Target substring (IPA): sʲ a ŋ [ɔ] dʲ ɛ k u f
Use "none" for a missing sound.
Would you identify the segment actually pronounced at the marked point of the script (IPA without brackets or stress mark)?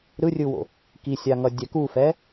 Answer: ʌ